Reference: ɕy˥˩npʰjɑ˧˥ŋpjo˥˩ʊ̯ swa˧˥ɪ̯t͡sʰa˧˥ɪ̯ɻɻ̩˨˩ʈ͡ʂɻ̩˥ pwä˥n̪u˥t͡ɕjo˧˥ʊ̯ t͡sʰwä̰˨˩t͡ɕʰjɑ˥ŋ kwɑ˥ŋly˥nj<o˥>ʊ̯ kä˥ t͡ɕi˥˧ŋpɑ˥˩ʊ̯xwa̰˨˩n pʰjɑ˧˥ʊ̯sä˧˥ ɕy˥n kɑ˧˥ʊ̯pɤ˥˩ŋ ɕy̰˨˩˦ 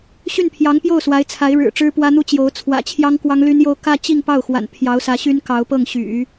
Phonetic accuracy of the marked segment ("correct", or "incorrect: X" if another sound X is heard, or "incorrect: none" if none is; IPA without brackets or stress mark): correct